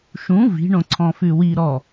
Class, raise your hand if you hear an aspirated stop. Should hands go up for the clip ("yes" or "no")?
yes